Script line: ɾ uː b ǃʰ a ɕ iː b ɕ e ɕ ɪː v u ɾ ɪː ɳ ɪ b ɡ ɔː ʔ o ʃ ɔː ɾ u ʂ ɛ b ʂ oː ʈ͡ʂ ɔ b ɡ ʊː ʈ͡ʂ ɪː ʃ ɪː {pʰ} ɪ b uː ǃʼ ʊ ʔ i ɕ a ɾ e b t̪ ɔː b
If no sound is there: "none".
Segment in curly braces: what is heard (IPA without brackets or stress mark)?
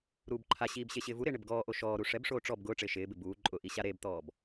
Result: b